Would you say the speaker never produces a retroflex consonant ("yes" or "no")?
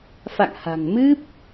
yes